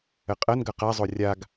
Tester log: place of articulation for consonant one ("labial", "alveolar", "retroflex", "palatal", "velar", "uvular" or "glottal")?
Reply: uvular